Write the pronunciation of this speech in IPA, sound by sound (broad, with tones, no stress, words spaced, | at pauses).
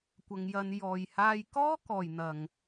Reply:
kʷɐ˧ŋjɐ˧n jɔː˨jhaː˧jkɔː˥ kɔː˨jn̪ɐ˨ŋ